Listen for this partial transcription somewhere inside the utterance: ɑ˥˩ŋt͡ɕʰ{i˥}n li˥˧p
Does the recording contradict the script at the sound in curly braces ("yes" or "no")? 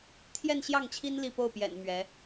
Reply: no